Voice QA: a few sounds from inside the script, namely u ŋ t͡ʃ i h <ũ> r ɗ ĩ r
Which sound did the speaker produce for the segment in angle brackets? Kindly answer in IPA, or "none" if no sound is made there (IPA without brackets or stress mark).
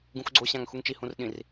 ũ